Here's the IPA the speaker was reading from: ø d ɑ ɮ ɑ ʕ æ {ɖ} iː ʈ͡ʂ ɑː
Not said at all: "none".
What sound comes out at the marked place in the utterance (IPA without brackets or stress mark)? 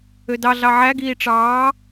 ɡ